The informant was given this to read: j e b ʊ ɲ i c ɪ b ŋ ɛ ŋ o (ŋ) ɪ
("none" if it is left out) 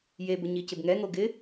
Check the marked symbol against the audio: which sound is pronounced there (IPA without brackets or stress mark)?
ɡ